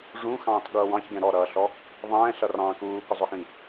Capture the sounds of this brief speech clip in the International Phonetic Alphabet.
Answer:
ʐũxɑ̃ːtɠʌː wɑ̃çɡɛ̃ ɾɔɾʌːɬɔ | ðˤɛ̃ːɬʌrɑ̃ː kuːkʊzˤʊxĩ

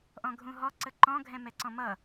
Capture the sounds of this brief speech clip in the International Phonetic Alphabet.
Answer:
ʔɔ̃ɡʱũɦɔ ǀəǃɔ̃ ɡʱɛ̃mɛǀɔ̃mʌ

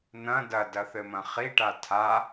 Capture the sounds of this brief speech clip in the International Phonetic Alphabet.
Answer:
n̪ɐ̃ dɐdɐθɘmɐ̃ χiʈa tʰa

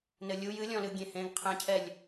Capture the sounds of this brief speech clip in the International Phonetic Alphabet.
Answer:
nɘlʲu jɨlʲɔ̃lɨ ɡʲẽhẽɡ qʰẽcʰɛlʲ

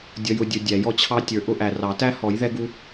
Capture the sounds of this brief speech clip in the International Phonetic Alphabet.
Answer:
dʲʌ˨jʊ˨dʲʊ˨ dʲæ˨˩˦jɔ˨t͡ɕʰɑ˦ tʲə˞˨ʔʊ˦ʔæ˨ rɑ˨˩˦ tæ˦ hɔ˨˩˦jðɛ˦ɡu˦

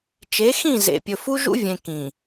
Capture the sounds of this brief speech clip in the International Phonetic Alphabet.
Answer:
t͡ʃe˨˦xĩ˦˨ zḛ˨pʲɵ˨ fu˦ʒṵ˦vʲẽ˨ kĩ˨

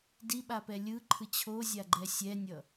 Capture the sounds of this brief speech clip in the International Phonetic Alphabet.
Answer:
diɓa pɛlʲɯ ǃʰɯt͡ɕʰozʲa ɡ͡ǃɛsʲɛnʲʌ

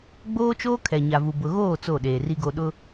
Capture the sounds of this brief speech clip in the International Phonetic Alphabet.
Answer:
ɡ͡boː˦t͡ʃoː˦ kʰɛ˨ɲa˨vu˨ bʊ˦ ɣoː˦˨ t͡so˦˨ɗeː˨ri˦ɡo˦ ɗʊ˦

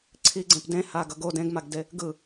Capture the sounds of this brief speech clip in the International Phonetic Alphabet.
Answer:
ǀʰiɡ͡ǀẽp dẽ haɡʌɡo dẽɡmaɡde | ɡɯ

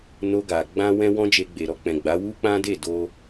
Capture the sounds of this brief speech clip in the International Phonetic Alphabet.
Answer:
no˧ɡa˨ ɡ͡bã˧ wɛ̃˦wɔ̃˦d͡ʒe˧ɡ͡be˨ ɾɔ˧k͡pɛ̃˨ɡ͡ba˨˦ wu˦k͡pã˦ de˦˨do˧

